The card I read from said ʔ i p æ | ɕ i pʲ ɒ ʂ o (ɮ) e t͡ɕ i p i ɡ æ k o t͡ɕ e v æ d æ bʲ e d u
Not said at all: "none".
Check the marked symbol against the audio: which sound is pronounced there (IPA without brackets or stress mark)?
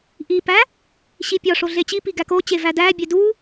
ɮ